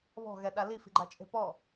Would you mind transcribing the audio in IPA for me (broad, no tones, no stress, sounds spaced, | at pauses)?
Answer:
β ɔ̤ ɣ ɛ ɗ a l i f i̤ ɡ͡ǃ a t͡ʃʼ e̤ p ɔ